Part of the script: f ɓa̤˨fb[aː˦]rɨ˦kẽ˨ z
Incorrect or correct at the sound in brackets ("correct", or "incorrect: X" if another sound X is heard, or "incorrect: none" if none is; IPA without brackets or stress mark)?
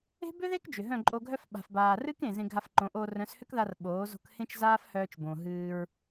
incorrect: aː˨